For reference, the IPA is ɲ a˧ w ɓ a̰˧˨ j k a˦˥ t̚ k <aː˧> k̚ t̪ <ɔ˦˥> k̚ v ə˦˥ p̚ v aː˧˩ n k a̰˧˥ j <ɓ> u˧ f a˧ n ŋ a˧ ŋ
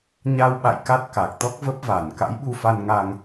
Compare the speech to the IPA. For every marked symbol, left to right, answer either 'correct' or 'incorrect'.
incorrect, correct, correct

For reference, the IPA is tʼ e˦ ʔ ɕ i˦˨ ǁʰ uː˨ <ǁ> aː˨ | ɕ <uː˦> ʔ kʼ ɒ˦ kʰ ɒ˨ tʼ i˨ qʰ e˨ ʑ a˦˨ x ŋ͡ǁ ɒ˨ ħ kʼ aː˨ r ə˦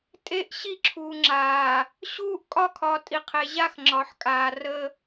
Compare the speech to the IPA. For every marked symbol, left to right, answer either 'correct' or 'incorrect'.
incorrect, correct

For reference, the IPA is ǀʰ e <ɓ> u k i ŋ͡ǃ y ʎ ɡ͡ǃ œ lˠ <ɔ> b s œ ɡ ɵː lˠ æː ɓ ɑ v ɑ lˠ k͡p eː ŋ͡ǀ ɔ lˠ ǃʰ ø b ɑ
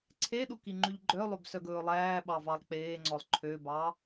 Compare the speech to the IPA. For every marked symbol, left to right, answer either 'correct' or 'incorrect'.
incorrect, incorrect

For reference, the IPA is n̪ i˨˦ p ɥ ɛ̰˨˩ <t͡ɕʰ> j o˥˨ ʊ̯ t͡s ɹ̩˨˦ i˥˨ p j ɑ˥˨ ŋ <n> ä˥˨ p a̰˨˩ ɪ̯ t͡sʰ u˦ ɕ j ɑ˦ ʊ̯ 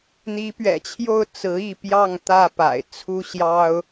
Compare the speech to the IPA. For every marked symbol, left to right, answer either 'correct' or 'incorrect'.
correct, incorrect

